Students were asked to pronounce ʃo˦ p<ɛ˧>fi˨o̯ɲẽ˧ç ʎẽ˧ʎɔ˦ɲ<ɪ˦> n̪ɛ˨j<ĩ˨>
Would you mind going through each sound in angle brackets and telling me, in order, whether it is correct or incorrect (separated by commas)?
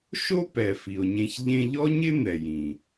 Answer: incorrect, correct, correct